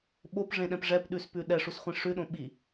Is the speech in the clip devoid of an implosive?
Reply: no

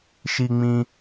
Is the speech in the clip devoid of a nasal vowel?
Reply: no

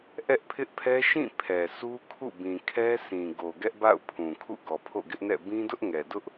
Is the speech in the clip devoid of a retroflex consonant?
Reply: yes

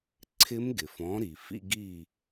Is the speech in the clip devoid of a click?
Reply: no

